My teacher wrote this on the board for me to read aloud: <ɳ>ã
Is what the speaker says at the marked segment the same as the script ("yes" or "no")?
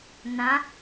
no